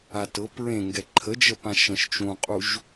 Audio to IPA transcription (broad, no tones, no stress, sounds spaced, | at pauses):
a t ɤ p ɹ ẽ ŋ ɡ ɛ ǃʰ ə d͡ʒ ə p ã ʃ ə̃ ʃ t͡ʃ ũ qʼ u ʒ